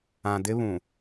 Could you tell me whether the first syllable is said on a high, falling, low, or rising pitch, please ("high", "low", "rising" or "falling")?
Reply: low